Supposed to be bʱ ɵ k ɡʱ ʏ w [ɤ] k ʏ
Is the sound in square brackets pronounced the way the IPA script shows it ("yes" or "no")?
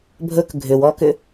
no